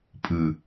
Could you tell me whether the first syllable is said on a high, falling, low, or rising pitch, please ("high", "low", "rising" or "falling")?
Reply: low